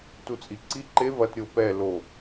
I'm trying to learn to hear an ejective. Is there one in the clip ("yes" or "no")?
yes